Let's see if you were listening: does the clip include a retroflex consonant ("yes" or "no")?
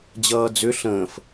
no